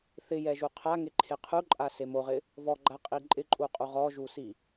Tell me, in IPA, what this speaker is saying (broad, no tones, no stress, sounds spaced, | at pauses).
θ ɪ j ɛ ʒ u qʰ a ŋ e ǃʰ e qʰ u ǃʼ a s e m o ʁ ɪ | v ɔ ɡ͡ǃ a qʼ i ǃʼ ɪ ǃʼ u qʼ u ʁ ɔ ʒ u s i